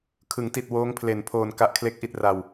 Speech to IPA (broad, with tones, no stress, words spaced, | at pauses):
kʰɯ˩˦ŋti˨˩t̚ woː˦˥ŋpʰle˨˩npʰoː˧n ka˦˥ʔkʰle˥˩k̚ʔi˥˩t̚ ra˧w